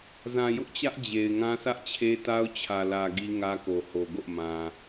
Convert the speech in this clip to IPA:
z ã˨ j ʊ˦ ʔ t͡ɕ ä˦ ʔ d͡ʑ e˨ ɪ̯ ŋ ã˦ sʰ ä˦ ʔ t͡ɕʰ e˦ t a˦ ʊ̯ t͡ɕʰ ä˨ l ä˨ ɡ i˦ ŋ ä˦ k o˨ h o˨ ɡ o̰˦˨ m ã˨

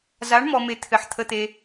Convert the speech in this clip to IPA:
z a˨˥ ɳ m ɔ˨ m e˨ t̪ʰ ɘ˨ ħ t̪ʰ ə˨ t̪ e˨

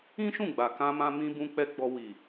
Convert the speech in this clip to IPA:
ĩ˦ ʃ ũ˦˨ ɡ͡b a˨ k ã˧ m ã˧ m ĩ˧ b ũ˧ k͡p ɛ˧ ɡ͡b ɔ˧ w i˨

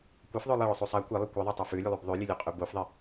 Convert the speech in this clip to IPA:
kʷ ɐ f ðˤ o lˠ ɐ ɭ ɵ sˤ u sˤ a kʷ e lˠ i kʷ e ðˤ ɵ tˤ u f ʉ lʲ ʉ lˠ u b ðˤ ʉ lʲ ɨ lʲ ʉ qʼ ʉ b o f ðˤ i

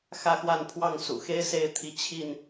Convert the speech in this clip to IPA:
x ä˥˨ x w a˥˨ n pʰ w ɑ˥˨ ŋ s ṵ˨˩ x e˦ ɪ̯ s e˥˨ ɪ̯ t̪ʰ i˨˦ t͡ɕʰ i˥˨ n

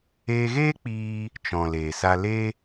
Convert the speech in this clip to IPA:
eː˧ ɣ eː˦ k͡p iː˦ | t͡ʃ ɔ̃˨ l eː˨ s a˦ l e˦

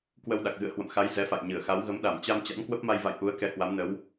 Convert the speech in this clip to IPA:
k w ə˧ w ɗ a˨˩ k̚ ɣ ɨ̰˧˨ ə̯ h w ə̰˧˨ m x a˨˦ j z ɛ˨˦ f a̰˧˨ j ɲ ɨ˧˩ ə̯ x a˨˦ w ɣ ə˨˦ m ɗ a˧˩ m t͡ɕ a˧ m t͡ɕ a̰˧˥ n k w ə˦˥ p̚ m a˧ j v a̰˧˨ j ʔ u˨˦ ə̯ k ɛ˧ h w a˨˦ m n ə˨˦ w

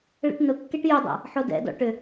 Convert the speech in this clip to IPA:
ɭ ɛ̰ ʈ n ʊ kː e ʈ j ʏ dˤ a̰ | ħ o d ɛ̰ d ɔ̰ ʈ ʏ

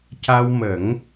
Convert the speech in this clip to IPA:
c a˧ w m ə˨˩˦ ŋ

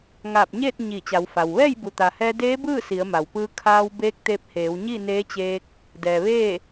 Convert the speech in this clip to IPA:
ŋ aː˧˩ p̚ ɲ eː˥˨ t̚ ɲ iː˧˩ t͡ɕ a˩˧ w f a˩ w ʋ ɛː˥˨ j b u˩ t̪ a˩ h ɛː˧ d eː˧˥ b ɯː˥˨ s i˩˧ ə̯ m a˩ w p ɯː˧ kʰ aː˧ w b eː˧˥ k̚ t̪ e˧ p̚ h eː˩˧ w ɲ i˥˨ n eː˧˥ t͡ɕ eː˧ k̚ | d ɛː˩ ʋ eː˥˨

